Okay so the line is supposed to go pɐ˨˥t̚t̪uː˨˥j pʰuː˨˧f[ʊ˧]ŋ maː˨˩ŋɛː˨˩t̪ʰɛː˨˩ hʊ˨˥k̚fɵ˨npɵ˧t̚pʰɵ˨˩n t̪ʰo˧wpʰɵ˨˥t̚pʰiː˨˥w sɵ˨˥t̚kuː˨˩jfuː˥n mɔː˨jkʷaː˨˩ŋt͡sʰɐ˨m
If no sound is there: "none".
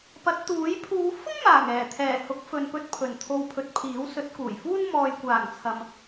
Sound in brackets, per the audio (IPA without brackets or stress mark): ʊ˥